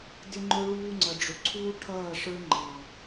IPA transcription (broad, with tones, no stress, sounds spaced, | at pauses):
d ɪ˦ ŋ͡ǃ ʊ˦ ɭ uː˦ ŋ͡ǀ ʌ˨ ɖ͡ʐ ʊ˨ ǀʰ uː˦ ʈʰ ʌː˦˨ ʂ ə˞˦ ŋ͡ǃ ɑ˨